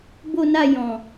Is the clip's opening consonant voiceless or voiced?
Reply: voiced